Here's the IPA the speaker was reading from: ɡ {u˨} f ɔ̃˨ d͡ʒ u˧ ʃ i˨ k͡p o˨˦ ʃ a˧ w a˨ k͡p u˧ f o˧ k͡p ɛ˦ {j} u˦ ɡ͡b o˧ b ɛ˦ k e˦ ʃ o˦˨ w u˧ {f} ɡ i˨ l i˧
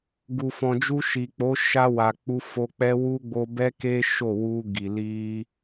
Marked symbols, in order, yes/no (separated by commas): yes, no, no